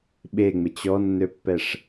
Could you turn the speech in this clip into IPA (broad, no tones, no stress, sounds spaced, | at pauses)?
ɓ e ŋ͡m ɪ t͡ɕ ɔ nː ø pː ɛ ʂ